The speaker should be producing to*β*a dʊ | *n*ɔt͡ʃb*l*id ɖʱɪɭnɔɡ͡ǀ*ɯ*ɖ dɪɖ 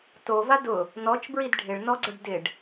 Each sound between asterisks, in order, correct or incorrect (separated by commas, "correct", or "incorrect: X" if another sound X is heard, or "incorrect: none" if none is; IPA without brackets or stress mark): incorrect: v, correct, incorrect: ɹ, incorrect: ʊ